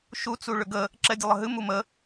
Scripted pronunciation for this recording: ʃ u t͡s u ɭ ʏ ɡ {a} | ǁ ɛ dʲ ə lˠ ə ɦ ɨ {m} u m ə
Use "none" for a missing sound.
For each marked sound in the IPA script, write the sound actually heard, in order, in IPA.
ə, m

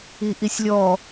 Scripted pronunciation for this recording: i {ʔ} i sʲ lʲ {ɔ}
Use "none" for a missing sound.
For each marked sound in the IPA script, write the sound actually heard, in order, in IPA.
ʔ, ɔ

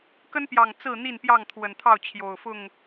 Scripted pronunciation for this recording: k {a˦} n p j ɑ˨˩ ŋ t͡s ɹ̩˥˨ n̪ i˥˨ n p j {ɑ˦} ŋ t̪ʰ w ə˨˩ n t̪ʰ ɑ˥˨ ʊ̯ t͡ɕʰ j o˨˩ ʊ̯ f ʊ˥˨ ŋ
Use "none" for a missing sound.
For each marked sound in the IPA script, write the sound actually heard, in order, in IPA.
ə˦, ɑ˥˨

